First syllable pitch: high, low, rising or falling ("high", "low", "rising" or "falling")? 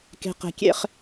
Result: high